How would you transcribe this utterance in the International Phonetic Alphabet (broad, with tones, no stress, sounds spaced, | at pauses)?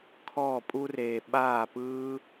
kʰ ɔː˥˨ pʼ u˥ r eː˧ ɓ aː˥˨ p ɯː˥